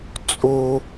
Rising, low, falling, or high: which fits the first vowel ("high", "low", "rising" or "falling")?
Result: low